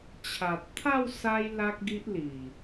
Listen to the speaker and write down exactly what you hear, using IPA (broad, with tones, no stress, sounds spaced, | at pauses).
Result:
t͡ɕʰ a˨ t̚ t̪ʰ a˥˧ w s a˦ j l a˦ k̚ ɡ i˦ ʔ l i˨˩